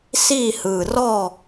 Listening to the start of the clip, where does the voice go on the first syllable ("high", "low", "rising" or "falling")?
falling